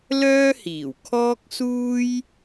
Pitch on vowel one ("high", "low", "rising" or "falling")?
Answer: high